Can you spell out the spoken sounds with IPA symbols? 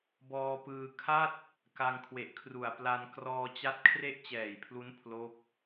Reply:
bɔː˧pɯː˧ kʰa˥˩t̚ | ka˧ŋkʰwe˨˩ʔkʰru˨˩a̯ pla˧n krɔː˧t͡ɕa˦˥t̚ kʰre˥˩ʔt͡ɕɛː˨˩jpʰlu˦˥n pʰlo˦˥k̚

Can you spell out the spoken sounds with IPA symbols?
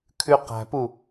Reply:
kʰʉqæ̤pu

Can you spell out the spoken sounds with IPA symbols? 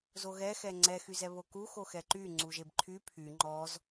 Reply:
zoɣɛ xɛŋ͡ǀɛ xyzɛβoku xoxɛǃy ŋ͡ǀuʒebǃʰy pʰy ŋ͡ǃɔz

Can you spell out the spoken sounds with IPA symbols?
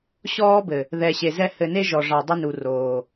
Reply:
ɕɔː˦bɘ˨ | ðɛ˨ɕe˨zɛ˦ hɘ˨ne˦ ʒɔ˨ ʐɑ˨ dˤɪ˦nu˨ roː˨

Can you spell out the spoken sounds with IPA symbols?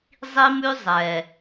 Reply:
zˤi˦mʉ˦zˤɛ˨

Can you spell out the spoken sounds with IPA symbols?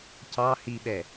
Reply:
cɑ hiɓɛ

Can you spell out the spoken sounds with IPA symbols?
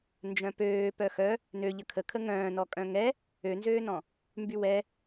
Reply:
nd͡ʒœ̃pøː pœxœ | nø ʎəkʰə kʰəŋœ̃ːnɔ kʼœ̃ŋɛ | ønzøːnɔ̃ | mbywɛ

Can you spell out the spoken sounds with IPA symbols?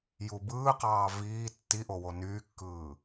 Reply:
jubɯːqɑː viː tːiʔo wonyːkːɯː

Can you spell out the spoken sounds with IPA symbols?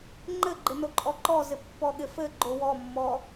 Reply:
ŋ͡ǃɘɡ͡ǃɪ noǃʼɔǃɔzɪ pːɔɠɪfɘɡ͡ǃo wɔmːɔ

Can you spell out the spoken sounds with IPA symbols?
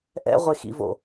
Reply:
ʔɛ̰ʁʷexḭvo̰

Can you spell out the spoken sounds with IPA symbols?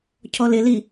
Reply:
cʰɔlɪli

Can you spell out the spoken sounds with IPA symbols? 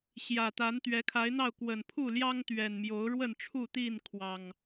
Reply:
ɕjä˨˩t̪a˨˦n t̪ɥɛ˨˦kʰa˨˦ɪ̯n̪ɑ˥˨ʊ̯ kwə˨˩npʰu˥˨ljɑ˦ŋ t̪ɥɛ˨˩n mjo˨˦ʊ̯ɻwə˥˨nʈ͡ʂʰu˥˨t̪i˥˨n kʰwɑ˨˩ŋ

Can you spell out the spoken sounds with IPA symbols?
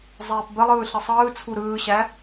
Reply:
zˤeːpbəlˠɯː ɬəsˤɯːt͡sʰu ɾɯːɕæ

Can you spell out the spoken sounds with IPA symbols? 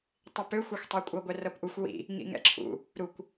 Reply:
tˤipøxʷ ɛxʷtˤɛkʷʼɤ ɡʷɛrɤpʔuxʷ wḭ | ŋḭŋɛ̰ǁʰṵ | ɾukʷ

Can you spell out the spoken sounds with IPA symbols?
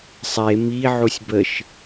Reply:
sˤe miʕusʲ bəʃ

